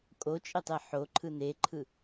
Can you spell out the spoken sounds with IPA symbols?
kʼ o t͡ʃʼ e tˤ e ħ o ǃʰ ɯ n e ǃʰ ɯ

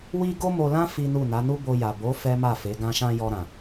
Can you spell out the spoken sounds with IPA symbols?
w i˦ ɡ o˦ m o˧ l ã˦ f i˦ n u˦˨ n a˨˦ n u˦ b o˧ j a˨ b o˨˦ f ɛ˦ m a˦˨ f e˨˦ ɡ ã˧ ʃ ã˧ j ɔ˧ ɾ ã˨

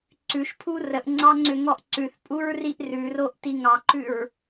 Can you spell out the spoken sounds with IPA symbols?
ǀ ʉ ʃ pʰ u r ə ʔ ŋ͡ǀ ɑ ŋ͡ǀ ʏ ŋ ɔ ʔ ǀ ʉ θ pʼ u ɹ r i ʔ r ʉ r o ʔ t i ŋ ɑ ǃ ʉ ɹ

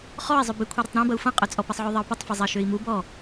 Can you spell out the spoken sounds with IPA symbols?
χ ɔ i̯ zˤ ø b ɪ kʷʰ i ɾ ʏ tˤ ɾ ĩ b ɐ u̯ f ɐ̃ qʼ œ t͡sʼ ɔ p ɐ sˤ ʕ ø ðˤ ɐ u̯ p ə tˤ f ɪ zˤ ɐ ʃ ø i̯ m u b ɔ

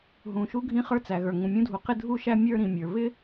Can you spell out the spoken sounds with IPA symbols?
ɦ ũ˩ ʃ u˥ ɡʱ ĩ˥ χ ə˞˥ t͡s æ˩ ɣ ə˞˩ ŋ ũ˩ mʲ ũ˥ dʱ u˩ q ɪ˥ dʱ u˥ ʃ æ˥ mʲ ə˞˥ ɾ ĩ˩ mʲ ə˞˩ β ɪ˥

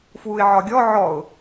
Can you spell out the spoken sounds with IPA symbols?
f w u ɪ̯ ʕ ɒ ɡʲ ɔ ʕ ɔ ʊ̯

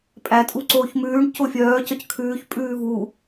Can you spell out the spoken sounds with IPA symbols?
pʼ æ tʼ u ǀ oː ç m ʉː ɳ c o fʲ œː c œ c kʰ ʉː ç pʼ ʉː v u

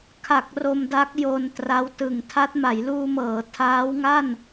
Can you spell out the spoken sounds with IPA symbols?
kʰ a˨˩ k̚ r o˧ m d a˦˥ k̚ j o˧ n t r a˦˥ w t ɯ˨˩ ŋ tʰ a˦˥ t̚ m a˩˦ j l uː˧ m ɤː˩˦ tʰ aː˦˥ w ŋ a˥˩ n

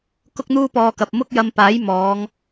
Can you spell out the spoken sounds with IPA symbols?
k ʊ˥ k̚ n̪ uː˥ p ɔː˧ k ɐ˨ p̚ m ʊ˥ k̚ j ɐ˧ m p aː˨˥ j m ɔː˨˧ ŋ

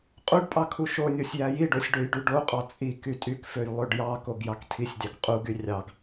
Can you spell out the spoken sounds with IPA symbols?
qʼ u ɖ pʼ ɑ kʰ u ʃ o nʲ o sʲ j æ j i ɖ o sʲ ɖ ø j ɖ y ɖ o qʼ ɑ t͡sʼ i k y tʼ y k f ø j lˠ ø ɖ j ɑ k o ɡ j ɑ k tʰ i sʲ dʲ ɑ k qʼ u ɡ y rʲ ɑ ɡ

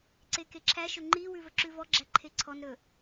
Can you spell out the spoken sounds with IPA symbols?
ǀ e k e ǁʰ æ ʃ ɵ ŋ͡ǃ i w ʉ v ɵ ǁ ʉ v ɔ ɡ͡ǁ æ ǃʰ e ǀʰ ɔ n ɾ ɵ

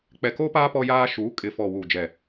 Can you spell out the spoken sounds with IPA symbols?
k͡p ɛ˨ k oː˦ p aː˦ p ɔ˦ j aː˦ ʃ uː˨˦ kʼ ɪ˨ f ɔ˨ w uː˨ d͡ʒ ɛ˨

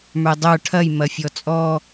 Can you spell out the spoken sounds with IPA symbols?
m ə˞ dˤ ə˞ ʈʰ ɐ j m ɐ fʲ ɔ t͡sʼ ɔ

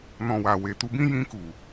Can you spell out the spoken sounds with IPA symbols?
n ɔ̃˨ w a˨ w e˨ t u˧ b ĩ˦ j ĩ˧ k u˨

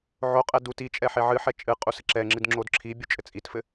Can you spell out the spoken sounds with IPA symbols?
ʕ o qʼ ɛ d u t i t͡ʃʼ ɛ ħ e ʕ ɨ ħ ɛ t͡ʃʼ ɨ qʼ u s ɘ ǁ ɛ ŋ͡ǁ ɨ d ŋ͡ǁ o d ǁʰ i bʲ u t͡ʃʼ ɘ t͡sʼ i t f ɘ

